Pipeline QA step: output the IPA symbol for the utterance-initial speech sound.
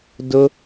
d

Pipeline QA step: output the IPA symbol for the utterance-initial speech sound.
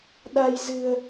ɗ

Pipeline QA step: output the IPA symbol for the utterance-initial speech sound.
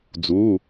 d͡z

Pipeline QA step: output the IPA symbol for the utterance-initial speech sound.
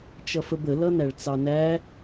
t͡ʃ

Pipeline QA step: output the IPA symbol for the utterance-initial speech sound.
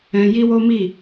ɛ̃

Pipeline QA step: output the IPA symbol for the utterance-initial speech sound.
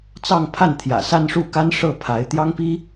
t͡s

